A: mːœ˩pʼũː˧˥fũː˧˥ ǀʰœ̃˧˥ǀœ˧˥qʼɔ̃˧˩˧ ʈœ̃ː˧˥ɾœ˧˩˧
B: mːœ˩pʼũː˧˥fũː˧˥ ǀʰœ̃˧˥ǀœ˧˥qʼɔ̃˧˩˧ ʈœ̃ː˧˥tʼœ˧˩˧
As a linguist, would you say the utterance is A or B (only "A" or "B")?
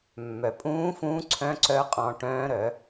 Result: A